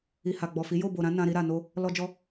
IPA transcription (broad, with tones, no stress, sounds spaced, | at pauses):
i˨ h a˨ ɡ͡b ɔ˨ f i˨˦ j o˦˨ b o˨ ɾ ã˨˦ n ã˧ ɾ i˧ ɾ a˨ n o˧ | l ɔ˧ d͡ʒ ɔ˧